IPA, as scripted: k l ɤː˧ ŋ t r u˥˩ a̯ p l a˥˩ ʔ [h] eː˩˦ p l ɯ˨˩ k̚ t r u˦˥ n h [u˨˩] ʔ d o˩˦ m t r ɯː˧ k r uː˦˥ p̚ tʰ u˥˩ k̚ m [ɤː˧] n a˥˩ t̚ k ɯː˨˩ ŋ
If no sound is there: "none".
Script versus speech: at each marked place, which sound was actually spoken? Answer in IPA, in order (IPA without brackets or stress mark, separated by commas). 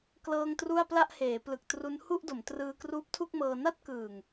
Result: h, u˥˩, ɤː˧